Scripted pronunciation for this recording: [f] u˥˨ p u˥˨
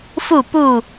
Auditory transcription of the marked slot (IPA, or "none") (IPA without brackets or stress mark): f